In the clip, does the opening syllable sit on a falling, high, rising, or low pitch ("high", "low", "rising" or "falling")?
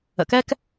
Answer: low